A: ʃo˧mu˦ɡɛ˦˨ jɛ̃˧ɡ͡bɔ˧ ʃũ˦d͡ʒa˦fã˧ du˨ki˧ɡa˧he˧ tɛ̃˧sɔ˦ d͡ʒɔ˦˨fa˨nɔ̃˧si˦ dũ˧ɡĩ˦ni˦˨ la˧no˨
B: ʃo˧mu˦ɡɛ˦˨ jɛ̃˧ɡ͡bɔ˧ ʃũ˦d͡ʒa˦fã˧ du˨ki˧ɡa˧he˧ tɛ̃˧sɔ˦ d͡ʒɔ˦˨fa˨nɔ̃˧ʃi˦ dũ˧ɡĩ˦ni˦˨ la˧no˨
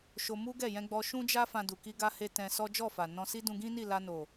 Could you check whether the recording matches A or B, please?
A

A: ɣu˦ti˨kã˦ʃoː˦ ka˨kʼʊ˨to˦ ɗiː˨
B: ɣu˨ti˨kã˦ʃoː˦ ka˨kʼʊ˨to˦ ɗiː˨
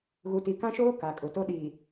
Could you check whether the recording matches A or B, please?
B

